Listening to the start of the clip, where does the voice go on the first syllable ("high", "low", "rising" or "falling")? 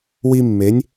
high